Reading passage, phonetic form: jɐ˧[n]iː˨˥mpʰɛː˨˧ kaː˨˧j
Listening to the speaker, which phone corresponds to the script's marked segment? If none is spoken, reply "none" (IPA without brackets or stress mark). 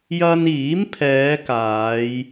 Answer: n